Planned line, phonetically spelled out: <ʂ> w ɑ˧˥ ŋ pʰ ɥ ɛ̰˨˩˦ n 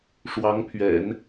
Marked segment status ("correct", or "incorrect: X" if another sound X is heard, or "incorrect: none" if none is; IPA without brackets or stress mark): correct